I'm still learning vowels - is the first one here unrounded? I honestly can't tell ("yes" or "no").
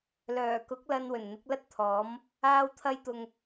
no